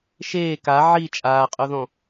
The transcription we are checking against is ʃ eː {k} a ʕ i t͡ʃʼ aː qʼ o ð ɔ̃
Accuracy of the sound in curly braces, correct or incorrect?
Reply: correct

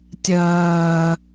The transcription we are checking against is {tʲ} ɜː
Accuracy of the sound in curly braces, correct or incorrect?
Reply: correct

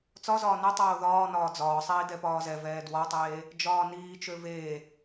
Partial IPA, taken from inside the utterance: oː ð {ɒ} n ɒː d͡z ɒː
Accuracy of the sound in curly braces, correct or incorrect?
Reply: incorrect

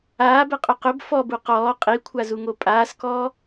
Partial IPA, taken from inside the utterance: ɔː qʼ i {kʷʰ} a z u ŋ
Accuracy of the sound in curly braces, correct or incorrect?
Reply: correct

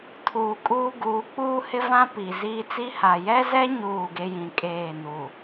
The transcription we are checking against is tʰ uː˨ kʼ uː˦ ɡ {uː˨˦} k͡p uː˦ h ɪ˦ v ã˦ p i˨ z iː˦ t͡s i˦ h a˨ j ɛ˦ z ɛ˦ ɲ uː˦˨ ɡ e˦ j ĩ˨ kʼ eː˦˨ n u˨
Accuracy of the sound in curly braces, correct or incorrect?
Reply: correct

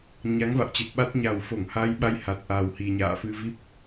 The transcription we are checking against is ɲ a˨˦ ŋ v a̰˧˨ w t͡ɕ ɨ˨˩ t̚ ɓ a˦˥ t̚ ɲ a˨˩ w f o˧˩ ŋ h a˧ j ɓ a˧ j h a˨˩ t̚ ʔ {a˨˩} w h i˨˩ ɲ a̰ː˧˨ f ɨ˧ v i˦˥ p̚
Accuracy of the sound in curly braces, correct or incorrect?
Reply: correct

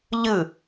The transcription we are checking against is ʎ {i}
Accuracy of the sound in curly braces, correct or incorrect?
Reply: incorrect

